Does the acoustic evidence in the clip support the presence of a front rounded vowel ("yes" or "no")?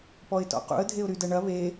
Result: yes